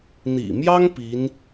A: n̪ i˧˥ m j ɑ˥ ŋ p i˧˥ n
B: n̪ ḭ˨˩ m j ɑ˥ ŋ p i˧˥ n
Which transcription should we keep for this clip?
B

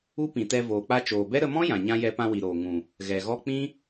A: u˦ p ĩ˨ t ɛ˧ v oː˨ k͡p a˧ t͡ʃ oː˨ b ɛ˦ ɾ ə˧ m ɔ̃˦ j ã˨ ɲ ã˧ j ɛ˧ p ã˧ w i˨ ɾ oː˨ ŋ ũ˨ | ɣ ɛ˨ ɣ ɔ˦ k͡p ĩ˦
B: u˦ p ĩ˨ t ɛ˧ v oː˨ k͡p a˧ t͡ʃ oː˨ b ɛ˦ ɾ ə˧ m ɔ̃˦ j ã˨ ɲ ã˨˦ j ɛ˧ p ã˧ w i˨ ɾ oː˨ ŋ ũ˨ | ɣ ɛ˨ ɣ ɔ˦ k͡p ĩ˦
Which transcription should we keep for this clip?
A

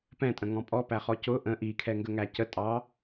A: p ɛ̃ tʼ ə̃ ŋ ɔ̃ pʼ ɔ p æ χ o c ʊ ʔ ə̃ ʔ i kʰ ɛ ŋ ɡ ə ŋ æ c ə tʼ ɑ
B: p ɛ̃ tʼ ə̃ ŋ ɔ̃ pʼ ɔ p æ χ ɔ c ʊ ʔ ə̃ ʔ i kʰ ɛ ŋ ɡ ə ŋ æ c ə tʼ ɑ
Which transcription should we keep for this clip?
B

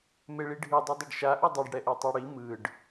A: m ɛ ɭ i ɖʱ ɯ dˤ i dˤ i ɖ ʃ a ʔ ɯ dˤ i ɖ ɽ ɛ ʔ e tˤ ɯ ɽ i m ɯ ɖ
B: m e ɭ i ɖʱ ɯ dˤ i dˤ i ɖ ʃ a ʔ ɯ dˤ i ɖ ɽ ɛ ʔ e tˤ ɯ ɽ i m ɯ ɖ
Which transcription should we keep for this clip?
B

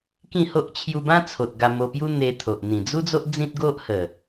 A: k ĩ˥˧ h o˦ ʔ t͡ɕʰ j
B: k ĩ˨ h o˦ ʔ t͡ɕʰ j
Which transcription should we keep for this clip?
A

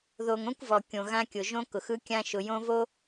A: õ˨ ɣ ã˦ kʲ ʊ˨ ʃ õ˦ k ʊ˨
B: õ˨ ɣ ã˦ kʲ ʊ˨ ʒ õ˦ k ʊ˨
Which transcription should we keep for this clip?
B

